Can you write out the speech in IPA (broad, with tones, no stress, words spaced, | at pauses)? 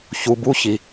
çu˨ bu˦˨çi˨